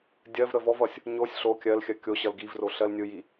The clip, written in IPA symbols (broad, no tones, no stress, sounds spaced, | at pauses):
dʲ ɜ v ɾ ə v ɔ v ʌ sʲ | ɲ o sʲ ɬ o kʲ ɜ l xʲ ɜ kʲ o ɕ ʌ l ɡ i v r o ɬ ɜ l nʲ ɯ j i